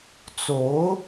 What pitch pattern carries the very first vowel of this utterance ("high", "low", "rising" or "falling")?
rising